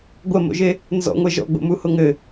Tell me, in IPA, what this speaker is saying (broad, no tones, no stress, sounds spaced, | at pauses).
ɡʷ ɐ m o̰ ʒ e | n z ɔ̰ ŋʷ ɛ ʒ ɔ̰ ɡ͡b o̰ m u h o ŋ ɘ